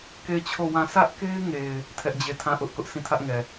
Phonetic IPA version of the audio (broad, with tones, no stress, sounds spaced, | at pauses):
k e˦˨ ɪ̯ t͡ɕʰ o˦˨ w ã˦˨ s ä˦ ʔ k e˦ ɪ̯ ŋ e˨ ɪ̯ | tʰ ɛ˦ ʔ d͡ʑ e˦˨ tʰ ã˦˨ ʔ ʊ˦ ʔ k ʊ˦ ʔ s ĩ˦˨ tʰ ä˦ ʔ ŋ ɛ˨